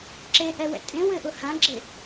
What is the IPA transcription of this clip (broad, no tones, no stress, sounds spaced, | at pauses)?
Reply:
ǁ e ʔ ɛ w ɛ̰ tʼ ẽ w ɘ ʔ ʊ h ã ɡ͡ǁ e